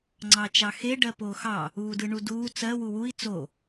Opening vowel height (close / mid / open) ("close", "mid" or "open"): open